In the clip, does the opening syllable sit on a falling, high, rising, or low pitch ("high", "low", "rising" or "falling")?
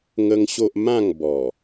high